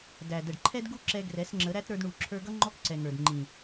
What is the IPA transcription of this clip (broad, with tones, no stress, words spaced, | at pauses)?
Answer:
dæ˨ də˨ɖǃʰɛ˦dɡu˦ǁɛ˧ ɡrɛ˨˦sŋ͡ǁə˨˦ɾæ˦t ɾə˞˧dɳu˨ǁʰə˞˧ɡʌ˦ ŋ͡ǃɔ˦kǀɛ˨ŋə˞˨d ŋ͡ǃĩ˨